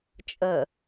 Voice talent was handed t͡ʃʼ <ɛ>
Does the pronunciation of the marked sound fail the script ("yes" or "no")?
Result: yes